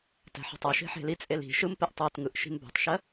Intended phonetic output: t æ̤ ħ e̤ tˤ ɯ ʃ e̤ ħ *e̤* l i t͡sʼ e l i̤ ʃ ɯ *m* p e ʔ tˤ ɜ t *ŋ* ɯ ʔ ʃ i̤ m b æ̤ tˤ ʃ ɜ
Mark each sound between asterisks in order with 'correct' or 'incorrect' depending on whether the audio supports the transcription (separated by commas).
correct, correct, correct